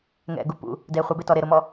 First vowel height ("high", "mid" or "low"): mid